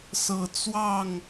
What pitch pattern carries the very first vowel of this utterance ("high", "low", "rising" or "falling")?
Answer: low